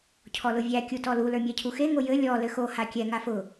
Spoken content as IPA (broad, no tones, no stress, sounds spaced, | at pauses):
cʰ ɔ l ʊ vʲ æ kʲ u t ɔ l u l ə˞ mʲ æ cʰ u x e ŋ o j ɘ lʲ ɔ l ɘ x o h a kʲ ɛ ŋ a f ʊ